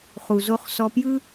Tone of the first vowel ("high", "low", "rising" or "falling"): low